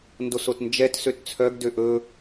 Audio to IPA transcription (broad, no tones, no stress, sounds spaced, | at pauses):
n d o s o t n d͡ʒ ɛ t s ø t t͡sʰ œ ɡ d ø ʔ ɵ